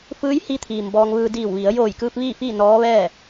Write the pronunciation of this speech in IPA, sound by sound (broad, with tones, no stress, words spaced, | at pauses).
fɯː˧˥jhi˧t̪ʰiː˩m bɔː˧ŋʋɯː˧ diː˧˩wʋi˩˧ə̯ joː˧˩jkɯː˧p̚ ʋiː˥˨fiː˥˨ nɔː˧˥ʋɛː˥˨